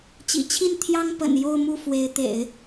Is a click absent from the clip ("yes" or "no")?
yes